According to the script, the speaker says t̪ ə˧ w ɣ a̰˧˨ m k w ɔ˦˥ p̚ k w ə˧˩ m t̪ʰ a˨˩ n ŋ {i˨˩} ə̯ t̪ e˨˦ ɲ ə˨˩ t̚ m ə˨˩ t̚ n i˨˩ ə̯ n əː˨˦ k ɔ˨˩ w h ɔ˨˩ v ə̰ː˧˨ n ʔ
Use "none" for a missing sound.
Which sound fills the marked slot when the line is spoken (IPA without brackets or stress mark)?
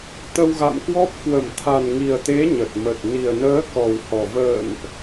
i˨˩